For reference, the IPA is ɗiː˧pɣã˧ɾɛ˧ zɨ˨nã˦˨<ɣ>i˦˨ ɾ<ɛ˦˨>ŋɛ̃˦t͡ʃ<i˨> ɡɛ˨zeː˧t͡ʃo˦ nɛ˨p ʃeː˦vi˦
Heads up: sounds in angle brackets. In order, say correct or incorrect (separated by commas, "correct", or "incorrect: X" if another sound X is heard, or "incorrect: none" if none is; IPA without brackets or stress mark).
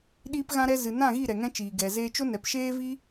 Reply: correct, incorrect: ɛ˨, incorrect: iː˨